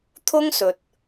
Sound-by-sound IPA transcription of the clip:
t̪ʰ ʊ˥ ŋ s ɵ˨ t̚

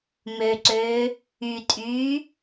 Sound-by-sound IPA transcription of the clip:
m ø ǀ øː | y tʼ yː

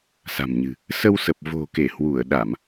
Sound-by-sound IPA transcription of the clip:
s a̤˨˩ m ɲ ɨ̤˨˩ | s ə˧ w s ə˨˩ p̚ v o̤˨˩ k e˧˩ h w u˧˩ ə̯ ɗ a˧˩˨ m

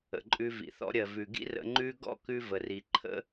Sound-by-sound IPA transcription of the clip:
ə̰˨ ǃʼ ʉ˧ v ḭ˨ θ ɔ̰˧ ɾʲ ɜ˨ v ʉ˨ ɡ ḭ˦ r ə̰˧ ŋ͡ǃ ʉ˦ ɡ ɔ̰˦ k ʉ˧ v ə˨ r i˨ ǃʰ ə̰˦

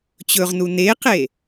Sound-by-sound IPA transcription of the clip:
t͡ɕ ɵ ʁ n u n e q e

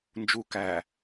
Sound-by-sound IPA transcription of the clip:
n d͡ʒ u k æ

